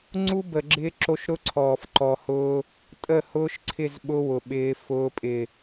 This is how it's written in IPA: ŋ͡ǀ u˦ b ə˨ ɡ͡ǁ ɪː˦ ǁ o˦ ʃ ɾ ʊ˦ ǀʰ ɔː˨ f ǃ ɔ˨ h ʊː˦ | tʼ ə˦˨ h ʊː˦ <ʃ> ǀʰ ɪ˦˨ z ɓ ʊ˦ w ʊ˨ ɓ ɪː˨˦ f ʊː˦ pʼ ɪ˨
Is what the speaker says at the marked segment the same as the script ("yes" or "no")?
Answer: yes